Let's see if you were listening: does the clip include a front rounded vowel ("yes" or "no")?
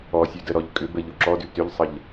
yes